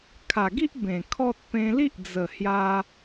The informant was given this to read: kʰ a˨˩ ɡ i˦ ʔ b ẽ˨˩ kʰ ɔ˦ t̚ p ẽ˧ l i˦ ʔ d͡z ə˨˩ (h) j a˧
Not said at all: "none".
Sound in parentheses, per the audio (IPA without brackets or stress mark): h